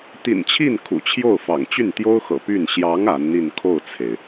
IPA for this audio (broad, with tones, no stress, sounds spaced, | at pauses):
t̪ ḭ˨˩ n t͡ɕʰ i˥˩ n kʰ ṵ˨˩ t͡ɕʰ j o˥˩ ʊ̯ f ɑ̰˨˩ ŋ t͡ɕ y˥˩ n t̪ j o˥ ʊ̯ x ɤ̰˨˩ p y˥˩ n ɕ j ɑ˧˥ ŋ a˧˥ n n̪ i˥˧ n kʰ o˥˩ ʊ̯ t͡sʰ e˩ ɪ̯